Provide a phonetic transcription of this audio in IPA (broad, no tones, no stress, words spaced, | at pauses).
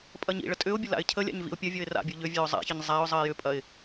pʼɐɲḭɭə tʼʏʊ̯bʲə la̰ɪ̯cʰəlʲa̰ɲ vḭʊ̯pʲɐvʲɔɪ̯ ra̰bʲu ʎʏvʲœʊ̯ zˤa̰çəɲ zˤaʊ̯zˤəɪ̯ jʏpʼɐɪ̯